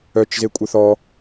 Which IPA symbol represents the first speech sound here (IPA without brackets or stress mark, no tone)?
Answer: œ